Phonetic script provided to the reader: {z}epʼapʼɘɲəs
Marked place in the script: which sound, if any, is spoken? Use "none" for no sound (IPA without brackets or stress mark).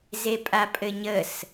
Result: z